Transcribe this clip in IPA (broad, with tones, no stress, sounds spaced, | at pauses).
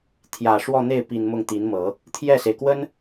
t̪ʰ j ä˨˩ ʂ w ɔ˥˧ n̪ e˥˩ ɪ̯ p i˨˩ n m ʊ˥˩ ŋ t̪ i˧˥ n m ɤ˨˩˦ | t̪ʰ j ɛ˥˩ s e˩ ɪ̯ k w ə˥ n